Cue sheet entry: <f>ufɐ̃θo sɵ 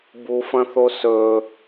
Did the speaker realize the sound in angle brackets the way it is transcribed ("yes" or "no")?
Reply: no